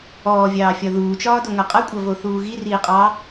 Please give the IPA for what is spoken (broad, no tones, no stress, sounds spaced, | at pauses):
ɔː vʲ ɑː fʲ ɒ ð uː t͡ʃ ɒː d o ŋ ɐ qʼ ɐ kʷʼ ɐ v o θ uː ɣ i r iː qʼ ɑː